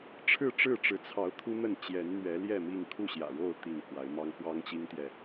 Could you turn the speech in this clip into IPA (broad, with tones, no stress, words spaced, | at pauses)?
ʈ͡ʂʰɻ̩˥˨ʈ͡ʂɻ̩˥˨ʈ͡ʂɻ̩˨˦t͡sʰɑ˨˦ʊ̯ t̪ʰu˦n̪ə˥˨n t͡ɕjɛ˨˦nn̪ɥɛ˨˦ljɛ˥˨mi˥˨ŋ kʰu˥˨ɕjä̰˨˩ɻo˥˨ʊ̯ t̪i˥˨ŋkwa˨˦ɪ̯mɑ˦ŋ xwɑ˦ŋt͡ɕi˦ŋt̪jɛ˨